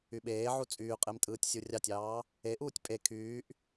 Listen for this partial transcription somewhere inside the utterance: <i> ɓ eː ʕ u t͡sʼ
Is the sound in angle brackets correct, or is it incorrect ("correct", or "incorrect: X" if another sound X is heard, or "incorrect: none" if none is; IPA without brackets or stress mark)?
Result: incorrect: y